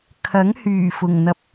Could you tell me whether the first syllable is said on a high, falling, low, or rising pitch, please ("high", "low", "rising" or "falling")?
rising